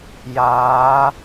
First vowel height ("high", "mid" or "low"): low